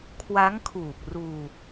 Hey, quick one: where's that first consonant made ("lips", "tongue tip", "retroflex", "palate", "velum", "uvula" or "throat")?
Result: velum